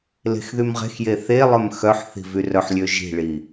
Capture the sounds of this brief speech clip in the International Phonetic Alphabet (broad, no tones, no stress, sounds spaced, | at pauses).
l e̤ x ð y m ʁ e̤ x j e θ e lˠ œ m x œ ħ θ i̤ v y r œ ħ lʲ ø ʒ i̤ ɭ i